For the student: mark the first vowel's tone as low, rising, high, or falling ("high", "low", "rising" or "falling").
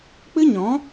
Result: high